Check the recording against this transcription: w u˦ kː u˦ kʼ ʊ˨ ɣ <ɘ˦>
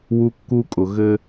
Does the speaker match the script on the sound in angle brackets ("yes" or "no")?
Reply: yes